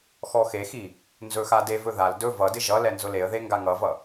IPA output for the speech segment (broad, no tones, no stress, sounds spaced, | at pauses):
x ɔ x e x i | n z ɵ x a d e v ɵ ð a l d ɵ v ʌ d ɪ ʒ ʌ l ɛ n z ʊ l e ə̯ ð e ŋ ɡ a ŋ ʌ v ʌ